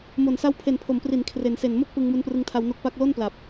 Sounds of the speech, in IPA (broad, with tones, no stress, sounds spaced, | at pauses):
m o˨˩ n s a˦˥ w pʰ e˨˩ n pʰ o˩˦ m p r i˩˦ n kʰ r e˩˦ n s e˨˩ n m o˥˩ k̚ p ɯ˧ ŋ m u˦˥ n p r ɯ˧ ŋ tʰ a˧ w n o˦˥ k̚ p a˥˩ k̚ l o˥˩ n p l a˨˩ p̚